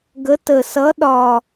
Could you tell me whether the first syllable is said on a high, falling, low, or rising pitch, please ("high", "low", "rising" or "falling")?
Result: rising